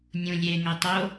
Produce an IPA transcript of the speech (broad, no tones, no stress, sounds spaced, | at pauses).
nʲ ũ lʲ e ŋ æ tˤ o